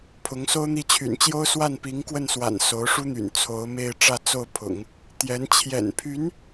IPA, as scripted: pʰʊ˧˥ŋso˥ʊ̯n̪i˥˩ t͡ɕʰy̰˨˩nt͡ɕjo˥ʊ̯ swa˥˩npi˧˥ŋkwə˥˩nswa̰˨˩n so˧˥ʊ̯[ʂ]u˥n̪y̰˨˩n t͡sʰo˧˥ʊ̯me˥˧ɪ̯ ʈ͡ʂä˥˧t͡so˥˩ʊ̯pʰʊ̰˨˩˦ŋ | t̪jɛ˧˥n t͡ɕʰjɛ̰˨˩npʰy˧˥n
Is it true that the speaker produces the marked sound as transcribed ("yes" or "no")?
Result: yes